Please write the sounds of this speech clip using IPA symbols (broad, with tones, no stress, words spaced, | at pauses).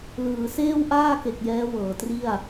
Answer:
lɯː˩˦seː˥˩wʔaː˥˩ke˨˩k̚ jɛː˦˥wɤː˩˦tri˥˩a̯